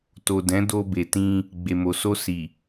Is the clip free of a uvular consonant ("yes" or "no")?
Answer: yes